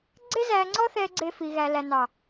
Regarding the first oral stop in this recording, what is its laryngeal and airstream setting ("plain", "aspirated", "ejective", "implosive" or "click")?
click